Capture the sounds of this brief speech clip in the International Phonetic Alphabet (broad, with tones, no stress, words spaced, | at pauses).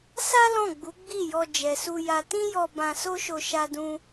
sa˦ lɔ̃˦˨ɡ͡bu˨˦ɡ͡bi˦˨jɔ˧ d͡ʒɛ˨su˧ja˧ tĩ˦jɔ˧ bã˧so˦ʃo˧ ʃa˦dũ˦